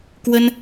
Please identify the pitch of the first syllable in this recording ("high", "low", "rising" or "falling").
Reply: high